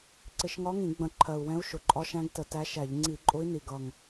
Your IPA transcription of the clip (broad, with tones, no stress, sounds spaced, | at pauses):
ǀ ɪ˧˩˧ ʃ ŋ ɒ˧˥ ŋ ĩ˧˩˧ ɡ͡b ə̃˧˩˧ ǃʰ ɜ˨˩ u̯ w ɛ̃˧˥ u̯ ʃ ʊ˨˩ ǃʼ ɒ˧˥ ʃ æ̃˧˥ ɡ t ə˧˩˧ t æ˧˥ ʃ æ˧˩˧ ʎ ŋ͡ǀ i˧˩˧ ǃʼ ʊ˧˥ i̯ n i˨˩ ɡ ʌ˨˩ ŋ